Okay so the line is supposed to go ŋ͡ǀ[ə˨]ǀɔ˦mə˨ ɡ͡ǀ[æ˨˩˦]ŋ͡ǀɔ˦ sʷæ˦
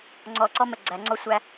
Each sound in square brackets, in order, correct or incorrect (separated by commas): incorrect, correct